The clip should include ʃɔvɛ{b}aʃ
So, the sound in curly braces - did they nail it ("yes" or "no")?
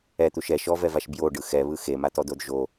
no